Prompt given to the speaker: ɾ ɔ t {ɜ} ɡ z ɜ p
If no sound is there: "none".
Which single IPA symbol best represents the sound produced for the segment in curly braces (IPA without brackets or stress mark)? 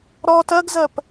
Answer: ɜ